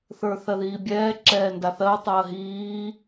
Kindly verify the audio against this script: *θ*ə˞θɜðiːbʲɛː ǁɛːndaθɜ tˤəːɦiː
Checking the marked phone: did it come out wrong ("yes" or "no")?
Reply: no